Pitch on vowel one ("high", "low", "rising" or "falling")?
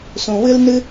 low